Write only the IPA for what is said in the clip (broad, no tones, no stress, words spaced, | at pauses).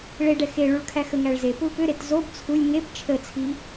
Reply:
ɭeɖɛ xeɭuɭ kʰæxəŋæɭ zepul pʏɾet zob t͡sʰulʲ ŋep t͡ʃʰət͡sʰi